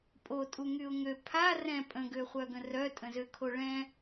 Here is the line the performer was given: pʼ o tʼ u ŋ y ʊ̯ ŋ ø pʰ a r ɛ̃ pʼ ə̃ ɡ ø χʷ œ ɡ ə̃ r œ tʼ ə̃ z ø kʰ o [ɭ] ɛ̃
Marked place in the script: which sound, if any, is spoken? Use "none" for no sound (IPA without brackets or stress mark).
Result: ɭ